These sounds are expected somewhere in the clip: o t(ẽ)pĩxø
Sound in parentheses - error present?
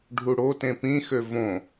no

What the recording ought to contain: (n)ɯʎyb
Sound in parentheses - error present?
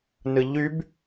no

